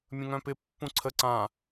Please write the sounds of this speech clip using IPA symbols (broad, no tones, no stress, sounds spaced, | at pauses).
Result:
mʲ ə̃ ŋ œ̃ p ɪ pː ũ ǀʰ ə ǀ ã